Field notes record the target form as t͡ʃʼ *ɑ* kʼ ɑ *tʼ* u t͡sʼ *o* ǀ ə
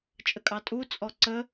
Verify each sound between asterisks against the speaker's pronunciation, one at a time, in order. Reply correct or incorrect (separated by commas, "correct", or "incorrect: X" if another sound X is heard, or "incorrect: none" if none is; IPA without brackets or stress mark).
incorrect: ə, correct, incorrect: ɔ